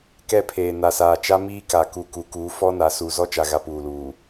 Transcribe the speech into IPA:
k ɛ˦˨ pʰ eː˨ n a˨ s aː˨ t͡ʃ a˦ m iː˦ k a˨ k u˨ k u˨˦ k uː˨˦ f ɔ˦ n a˨˦ s u˨ z ɔ˦ t͡ʃ a˨ ɣ a˨ p uː˨ l uː˨

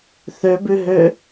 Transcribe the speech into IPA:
θ ø b ʉ ɦ ø

